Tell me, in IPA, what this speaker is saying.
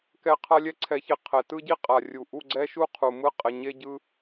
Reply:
k ɛ˦ qʰ a˦ lʲ ɛ˦ ǀʰ ɛ˨˦ ç e˨ qʰ ɛ˨ t ɯ˦ ɟ i˦ qʼ a˨ rʲ u˨ ʔ u˦˨ ɡ͡ǀ ɛ˦ ʃ u˦ qʰ u˨ m ɯ˦ qʼ ɛ˨ ɲ e˦ ɟ ɯ˦

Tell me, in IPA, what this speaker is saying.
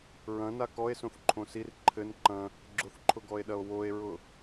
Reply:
ɹ ɐ̃ n a k ɔ e̯ s õ θ ǃʰ õ s i r ǃʰ ɘ n ǃ ɐ̃ | ɡ͡ǁ ʊ θ ǃʰ ʊ ɡ ɔ e̯ ɗ ɐ o̯ w o e̯ ɹ ʊ

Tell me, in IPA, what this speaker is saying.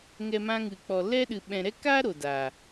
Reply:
ŋ ɛ˧ m ã˧ ŋ ɨ˨ k͡p ɔ˨ l ɛ˧ ɗ ɨ˨ ɓ ɛ̃˨ ɾ ɛ˧ k aː˦ ɾ o˨ d a˨

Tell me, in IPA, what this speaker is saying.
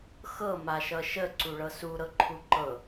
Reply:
x ɤ m a ʃ ʌ ʃ ə ǀ u ɭ ɤ s u ɾ ɤ ǃʰ u ǃ ɤ

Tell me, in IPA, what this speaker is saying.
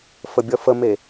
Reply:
f ə bʲ ʌ f ə m e

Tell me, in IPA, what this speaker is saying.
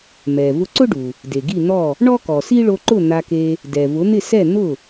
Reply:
m ɛ˩ v ʊ˧ ǀ ʊ˥ ɖ u˩ | d e˩ ɡ i˥˩ n̪ ɔ˥˩ | ɳ ɔ˥ k ɔ˩ s i˥ ɭ o˧ ǃ ʊ˥˩ n̪ a˧ k e˧ | d ɛ˩ v ʊ˩˥ n̪ ɪ˥˩ s ɛ˥˩ n̪ ʊ˥˩

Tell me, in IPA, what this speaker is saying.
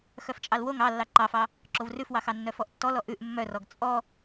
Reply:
x œ f t͡ʃʼ ɑ l w o ŋ ɑ lː ɑ ǃ ɑ f ɑ | ǁ o v r ʉ f w ɑ x ɑ nː œ f ɔ ʔ tː ɔ l ɔ ʔ ʉ ʔ mː œ r ɔ ɡ t͡sʼ ɔ

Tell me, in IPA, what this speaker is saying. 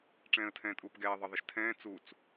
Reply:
ʈ͡ʂ ɛ̃ː ə̯ tʰ ɛ̃ː tʼ uː p ɡ ɛː ðˤ ə ðˤ ə ʃ tʰ ɛ̃ː t͡s u t͡s

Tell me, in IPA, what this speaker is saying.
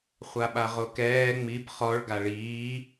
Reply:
χʷ a ɓ a ʁ o k ɛː ŋ͡m i b χ ɔ ɭ ɡ a ɭ iː

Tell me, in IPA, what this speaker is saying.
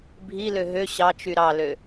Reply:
bʱ i l ø ɦ ø ɕ ɑ t͡ʃ y ɾ ɑ l ø

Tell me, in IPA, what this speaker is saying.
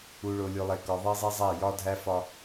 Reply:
u˨ ɭ o˨ lʲ o˨ lˠ e˨ k ɒ˨ ðˤ e˦ zˤ i˦ zˤ æ˦˨ j ɒ˦ dʱ æ˦ f ɒ˦

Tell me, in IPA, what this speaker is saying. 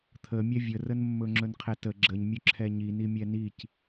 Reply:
t̪ʰ ə mʲ ɛ vʲ ə r ə n mː ɵ ŋ͡ǁ ɵ n qʰ ɛ t ə ɡ͡ǁ ə ɲ mʲ ɵ ǁʰ ɛ ɲ i n i mʲ ɛ n i c

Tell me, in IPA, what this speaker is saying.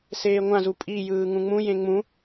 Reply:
s eː ŋʷ ã z u pʼ i j ɯː ŋ ũ ŋ͡m ũ j ẽ ŋ͡m ũ

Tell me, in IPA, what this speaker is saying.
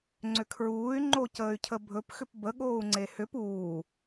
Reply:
ŋ͡ǀ ʏ kʰ ɹ uː y̯ ŋ͡ǃ o c əː y̯ cʰ ə bʱ ɵ p x ʏ p b ə ɠ oː u̯ ŋ͡ǀ e h ʏ p uː

